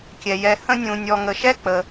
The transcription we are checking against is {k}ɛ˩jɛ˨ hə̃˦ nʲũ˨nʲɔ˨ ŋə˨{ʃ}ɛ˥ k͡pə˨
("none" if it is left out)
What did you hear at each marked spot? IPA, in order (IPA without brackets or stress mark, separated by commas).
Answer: kʲ, ʃ